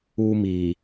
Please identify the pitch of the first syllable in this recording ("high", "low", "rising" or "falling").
high